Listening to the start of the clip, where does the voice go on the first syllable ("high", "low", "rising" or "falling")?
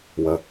low